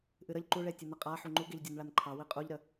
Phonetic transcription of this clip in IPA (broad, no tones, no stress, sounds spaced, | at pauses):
ʔ ɨ ɾ ə ʎ ǃ u ɭ e tʲ ɨ n ə qʼ a ħ u ŋ͡ǃ u ɡ e ʎ dʲ o n ɭ a n ǃʰ ɑ w i qʼ u ʎ ɾ ə